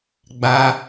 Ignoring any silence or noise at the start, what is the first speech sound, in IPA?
ɡ͡b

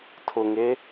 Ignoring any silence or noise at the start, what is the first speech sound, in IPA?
tʰ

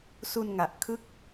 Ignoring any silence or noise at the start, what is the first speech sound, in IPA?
s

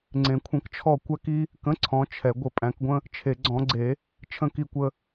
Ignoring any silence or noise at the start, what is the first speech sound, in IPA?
ŋ͡ǀ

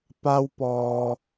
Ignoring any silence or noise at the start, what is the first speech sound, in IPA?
p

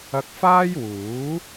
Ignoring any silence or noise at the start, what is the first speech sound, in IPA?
ɐ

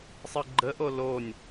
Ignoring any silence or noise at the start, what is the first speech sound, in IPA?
sˤ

